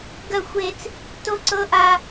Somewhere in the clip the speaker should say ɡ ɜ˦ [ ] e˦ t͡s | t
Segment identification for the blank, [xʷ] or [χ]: xʷ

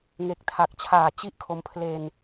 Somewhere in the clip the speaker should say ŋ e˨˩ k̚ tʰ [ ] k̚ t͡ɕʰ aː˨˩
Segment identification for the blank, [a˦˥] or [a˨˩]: a˨˩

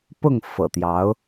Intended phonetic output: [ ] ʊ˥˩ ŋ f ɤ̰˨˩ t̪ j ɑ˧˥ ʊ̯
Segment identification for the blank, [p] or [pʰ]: p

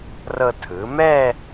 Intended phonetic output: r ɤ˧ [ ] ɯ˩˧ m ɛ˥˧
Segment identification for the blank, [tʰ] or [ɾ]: tʰ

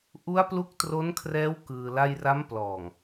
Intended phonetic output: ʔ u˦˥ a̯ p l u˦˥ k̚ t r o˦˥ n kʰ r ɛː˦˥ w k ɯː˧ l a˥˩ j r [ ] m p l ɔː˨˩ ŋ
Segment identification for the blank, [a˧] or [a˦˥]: a˦˥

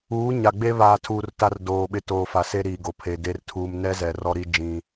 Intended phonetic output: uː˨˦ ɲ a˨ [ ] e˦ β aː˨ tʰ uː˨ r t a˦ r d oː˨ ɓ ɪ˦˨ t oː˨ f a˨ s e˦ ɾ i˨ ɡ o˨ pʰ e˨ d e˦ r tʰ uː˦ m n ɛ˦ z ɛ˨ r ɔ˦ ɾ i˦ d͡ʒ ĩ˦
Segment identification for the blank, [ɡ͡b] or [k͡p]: ɡ͡b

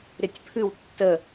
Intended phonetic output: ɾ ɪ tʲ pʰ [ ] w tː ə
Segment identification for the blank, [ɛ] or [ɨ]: ɨ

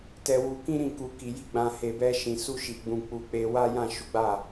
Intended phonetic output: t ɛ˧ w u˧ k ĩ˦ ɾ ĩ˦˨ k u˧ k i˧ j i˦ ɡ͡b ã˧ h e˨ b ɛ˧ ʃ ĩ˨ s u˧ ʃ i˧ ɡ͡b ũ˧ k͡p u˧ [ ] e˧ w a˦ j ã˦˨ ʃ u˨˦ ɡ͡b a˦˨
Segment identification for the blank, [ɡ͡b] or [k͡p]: k͡p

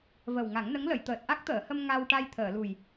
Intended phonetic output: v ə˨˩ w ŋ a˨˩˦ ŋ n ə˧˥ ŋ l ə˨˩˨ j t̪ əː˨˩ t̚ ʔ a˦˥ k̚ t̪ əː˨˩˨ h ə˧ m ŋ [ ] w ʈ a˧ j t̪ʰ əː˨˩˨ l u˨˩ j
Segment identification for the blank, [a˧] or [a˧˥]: a˧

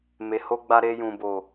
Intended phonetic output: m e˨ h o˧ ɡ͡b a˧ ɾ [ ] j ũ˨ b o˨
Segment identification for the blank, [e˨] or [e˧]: e˧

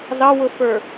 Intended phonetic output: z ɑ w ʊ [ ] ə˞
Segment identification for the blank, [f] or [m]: f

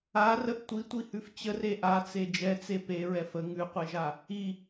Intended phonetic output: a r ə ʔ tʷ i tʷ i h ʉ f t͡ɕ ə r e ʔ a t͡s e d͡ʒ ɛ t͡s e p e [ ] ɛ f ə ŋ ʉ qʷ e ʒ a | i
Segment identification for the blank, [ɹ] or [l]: ɹ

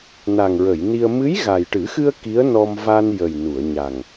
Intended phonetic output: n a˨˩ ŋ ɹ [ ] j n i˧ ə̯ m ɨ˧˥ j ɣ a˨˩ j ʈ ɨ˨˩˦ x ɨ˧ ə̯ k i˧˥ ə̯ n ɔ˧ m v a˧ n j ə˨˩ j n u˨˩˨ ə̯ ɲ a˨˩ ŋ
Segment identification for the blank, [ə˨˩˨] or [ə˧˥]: ə˨˩˨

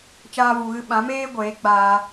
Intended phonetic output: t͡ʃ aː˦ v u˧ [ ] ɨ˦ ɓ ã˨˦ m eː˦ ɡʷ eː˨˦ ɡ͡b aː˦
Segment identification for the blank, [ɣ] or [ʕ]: ɣ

